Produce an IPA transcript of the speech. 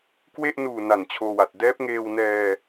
kwe˥˩ʔ nuː˨˩ na˨˩nt͡ɕʰoː˧wa˨˩t̚ dɛː˦˥p̚ŋeː˧w nɛː˧

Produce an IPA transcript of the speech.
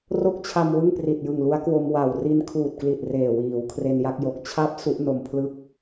ro˥˩k̚t͡ɕʰa˧m wɯ˥˩ŋpri˨˩t̚jɯ˨˩ŋlu˦˥a̯ kwo˧mwa˨˩w ri˧nkʰuː˨˩t̚kli˨˩t̚ reː˨˩wiː˩˦w kʰre˧nja˥˩k̚jo˨˩k̚ t͡ɕʰa˦˥p̚ su˦˥ʔ no˨˩mpʰlɯ˥˩k̚

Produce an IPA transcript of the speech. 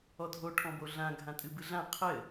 ɔdʱo ʈʰɔ̃boɮã ɡʱãtʼɨbɨɮã qʰɘ

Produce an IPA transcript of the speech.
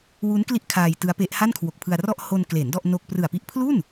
wu˦˥nkli˦˥ʔ kʰaː˧jtɯ˦˥a̯pe˦˥ʔ ha˥˩nkʰwo˨˩k̚pʰɯ˧a̯rɔ˥˩ʔ ho˧n kle˩˦n dɔ˥˩ʔ no˥˩k̚ prɯ˨˩a̯pi˦˥ʔpʰlu˥˩n

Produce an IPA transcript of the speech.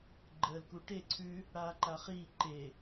ɡ͡ǃəːlkuʈe ǀʰʉ | ɽaːǃaχiː ǃe

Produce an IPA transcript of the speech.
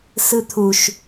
sɯt̪ʰuʃ

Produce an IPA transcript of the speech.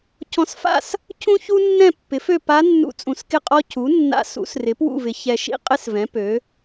cʰɔ̃˨s fa̰˥˨s | cʰũ˥çu˥ nːɛ̃˥˨pːɪ˩˥fø˥˨ pa˧˥nːṵ˧˥ t͡sʼũ˨skɪ˥˨qʼɔ˥ cʰu˩˥nːa̰˧˥sṵ˩˥srɪ˩˥ pwṵ˥˨vɪ˩˥ çɛ˨ʃḭ˥ qʼɪ˥svɛ̃˩˥ pø˩˥

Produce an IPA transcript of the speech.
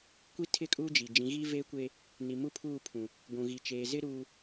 kʷi˦ tʰɪ˦˨kʼuː˦d͡ʒi˨ d͡ʒĩ˨˦ɣi˦veː˦kʷe˦ | ni˨mu˦pʰuː˦˨pʰũ˨ | ɡʷũ˨ɣi˨ t͡ʃeː˨zɪ˦ɾuː˨

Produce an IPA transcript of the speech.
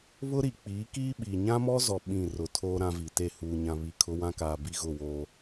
βʊ˦ɾi˨ k͡piː˨˦kiː˦ɓiː˨ ɲã˦mɔ˦zɔ˨ ɓĩ˦˨rʊ˨tʰoː˦ ɾã˦vi˨te˦˨ huː˨ɲã˨ βi˨kʰʊ˦wã˦kaː˨ bi˦ɣʊ˦˨woː˦

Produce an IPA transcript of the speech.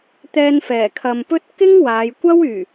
t̪ɛː˧nfɛː˨˩kʰɐ˨mpɵ˥t̚ kɪ˥ŋ waː˨˧j kʷɐ˥wyː˨˩

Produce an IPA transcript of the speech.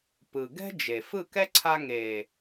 pɯ˨ ɡɛ̤˦ d͡ʒe˨ fɯ˦˨kɛ˦ ǀʰa˧ŋe˨

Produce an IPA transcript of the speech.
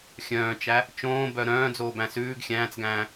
xʲœ̃ːt͡ʃæ | t͡ʃõːbœ ɾœ̃ːd͡zoːbæ̃ sʉːɡ xʲæ̃ːt͡sɡæ̃ː

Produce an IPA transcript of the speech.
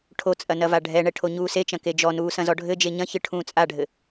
ʈʰot͡sʼɐ nɐvaɖʱɛɳɛ ʈʰoɲuːset͡ʃɐ̃ ked͡ʒɔnuː sɐ̃zɔɖʱɘd͡ʒe ɲɐ̃çɨ ʈʰũːt͡sʼaɖʱɘ

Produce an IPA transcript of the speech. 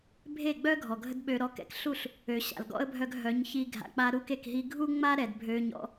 bʱe˦˨ɡ͡bœ˦ ɡʱɔ˨ɡʱə˦dɓø˧ ɾɔ˧kɛ̰˧k ɬu˦˨ɬ | ø˨ ɕa̰˨lɡɔ̰˦ə̯bʱœ˧ɡ ɦœ˨˦ɲ çi˧ɡʱa̰˨ k͡pa˧ ɾu˧ke˨k ɦi˧ɡʱu˦ŋ͡ma˦ ɾɛ˨dbʱø˧ɲɔ̰˦

